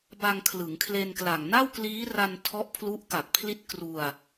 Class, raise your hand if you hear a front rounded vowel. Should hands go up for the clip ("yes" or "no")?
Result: no